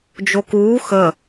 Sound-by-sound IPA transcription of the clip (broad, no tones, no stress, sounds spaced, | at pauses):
d͡ʒ o k uː x ə